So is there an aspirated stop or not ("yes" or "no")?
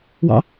no